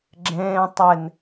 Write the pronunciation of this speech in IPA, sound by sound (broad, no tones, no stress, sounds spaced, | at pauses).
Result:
ɡ͡ǁ ẽː tˤ e n